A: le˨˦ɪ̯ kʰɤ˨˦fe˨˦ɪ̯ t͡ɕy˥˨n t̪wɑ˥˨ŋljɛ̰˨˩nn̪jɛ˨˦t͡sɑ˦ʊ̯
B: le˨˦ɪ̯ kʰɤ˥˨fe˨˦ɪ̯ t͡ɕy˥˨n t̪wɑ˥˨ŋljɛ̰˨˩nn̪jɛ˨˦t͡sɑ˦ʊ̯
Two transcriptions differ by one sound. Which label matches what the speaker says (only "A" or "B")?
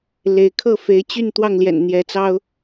B